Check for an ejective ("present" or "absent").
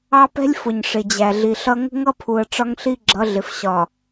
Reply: absent